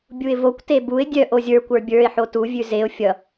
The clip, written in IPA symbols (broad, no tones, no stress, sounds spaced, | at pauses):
bʲ u ɪ̯ v o kʷ t e b u ɪ̯ dʲ œ ʔ o zʲ ə˞ kʷ ə˞ bʲ ə˞ ɪ̯ ħ o t u vʲ ʉ z e ʊ̯ fʲ ʌ